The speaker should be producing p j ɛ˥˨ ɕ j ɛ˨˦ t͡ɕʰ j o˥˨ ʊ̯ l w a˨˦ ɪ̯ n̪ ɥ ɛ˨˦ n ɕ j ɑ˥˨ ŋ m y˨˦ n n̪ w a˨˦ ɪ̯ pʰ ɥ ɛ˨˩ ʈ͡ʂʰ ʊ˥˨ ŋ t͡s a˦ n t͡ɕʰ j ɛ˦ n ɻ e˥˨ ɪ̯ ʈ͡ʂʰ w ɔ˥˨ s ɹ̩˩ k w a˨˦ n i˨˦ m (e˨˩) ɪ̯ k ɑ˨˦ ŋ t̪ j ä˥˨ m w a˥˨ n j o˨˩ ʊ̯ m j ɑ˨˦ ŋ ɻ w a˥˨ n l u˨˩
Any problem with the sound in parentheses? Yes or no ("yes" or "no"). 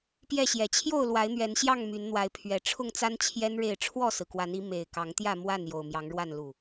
no